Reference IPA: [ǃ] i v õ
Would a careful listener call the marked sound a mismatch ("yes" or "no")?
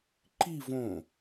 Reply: no